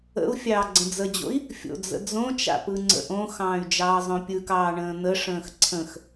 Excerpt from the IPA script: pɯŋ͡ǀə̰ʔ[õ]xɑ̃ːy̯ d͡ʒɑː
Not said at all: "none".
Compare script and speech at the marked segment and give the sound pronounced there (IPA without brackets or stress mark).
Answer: õ